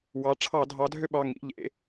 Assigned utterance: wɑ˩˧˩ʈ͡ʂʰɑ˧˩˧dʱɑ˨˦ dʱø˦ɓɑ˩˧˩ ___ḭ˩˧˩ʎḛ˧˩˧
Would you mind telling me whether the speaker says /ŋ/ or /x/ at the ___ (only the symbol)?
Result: ŋ